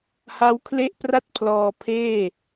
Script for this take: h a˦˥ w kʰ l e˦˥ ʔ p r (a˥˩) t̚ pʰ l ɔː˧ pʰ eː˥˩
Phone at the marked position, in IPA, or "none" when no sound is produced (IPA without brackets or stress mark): a˥˩